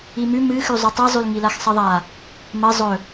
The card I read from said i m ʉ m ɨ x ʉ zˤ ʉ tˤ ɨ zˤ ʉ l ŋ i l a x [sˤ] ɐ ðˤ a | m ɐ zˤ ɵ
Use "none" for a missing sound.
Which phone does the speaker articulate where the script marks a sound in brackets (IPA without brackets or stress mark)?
sˤ